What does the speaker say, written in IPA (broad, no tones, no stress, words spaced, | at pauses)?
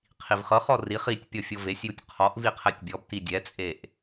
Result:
qʰivχɤχɔ riχ itʲ pʲɔfʲɤvesʲjutʲ qʰɔʔvi qʰɛtʲbʲɔbti dʲɛt͡sʼeʔ